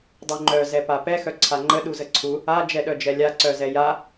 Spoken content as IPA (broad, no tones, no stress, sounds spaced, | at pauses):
dˤ u ŋ͡ǃ œ z ɛ p a p ɛ x œ ǀʰ a ŋ͡ǃ ə ɗ u z ə ǀʰ u | a d͡ʒ ɛ ɗ œ d͡ʒ ɛ lʲ a ǀ œ z ɛ j a